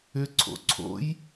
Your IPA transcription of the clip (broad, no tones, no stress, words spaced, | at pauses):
ʏ ǀʰo̰ǀʰo̰j